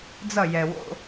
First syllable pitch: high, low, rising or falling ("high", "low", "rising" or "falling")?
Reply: falling